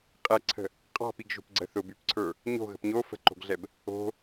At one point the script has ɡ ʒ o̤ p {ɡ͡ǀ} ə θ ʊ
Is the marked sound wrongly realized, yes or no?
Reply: no